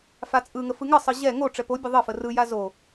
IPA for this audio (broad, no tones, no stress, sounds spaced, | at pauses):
f a t͡sʼ ɯ ŋ ə f ɯ ŋ ə sˤ ɯ ʑ ɛ ŋ o ʈ͡ʂ ɛ p o bʲ ə ðˤ ə f ə r ɯ j a z o